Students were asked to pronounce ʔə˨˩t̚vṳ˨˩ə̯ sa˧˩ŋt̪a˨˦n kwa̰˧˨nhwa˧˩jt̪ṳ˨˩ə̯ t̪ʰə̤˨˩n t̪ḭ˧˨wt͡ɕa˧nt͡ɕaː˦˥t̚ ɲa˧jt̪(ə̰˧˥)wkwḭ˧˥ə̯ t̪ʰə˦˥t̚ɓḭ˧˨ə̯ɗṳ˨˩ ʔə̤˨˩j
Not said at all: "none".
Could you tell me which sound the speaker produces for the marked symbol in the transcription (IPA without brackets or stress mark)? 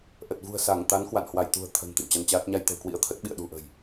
ə̤˨˩